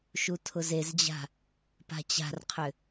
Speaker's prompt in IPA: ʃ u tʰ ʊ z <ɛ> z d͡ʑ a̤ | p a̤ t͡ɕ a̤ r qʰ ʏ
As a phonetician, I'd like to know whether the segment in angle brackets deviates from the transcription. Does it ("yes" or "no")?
yes